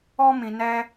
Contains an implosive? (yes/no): no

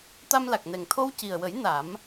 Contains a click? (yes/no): no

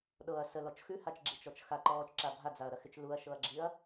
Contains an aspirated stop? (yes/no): no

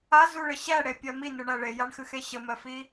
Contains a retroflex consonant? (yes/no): yes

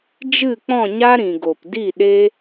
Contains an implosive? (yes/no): yes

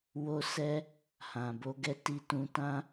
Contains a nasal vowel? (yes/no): yes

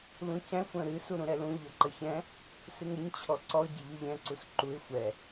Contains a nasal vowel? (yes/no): yes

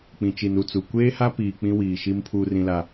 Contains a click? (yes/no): no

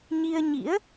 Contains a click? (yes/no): no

